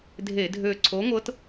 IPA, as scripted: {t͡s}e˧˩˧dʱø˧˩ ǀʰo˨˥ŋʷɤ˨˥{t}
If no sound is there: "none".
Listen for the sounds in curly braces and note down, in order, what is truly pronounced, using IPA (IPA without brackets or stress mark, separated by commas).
dʱ, t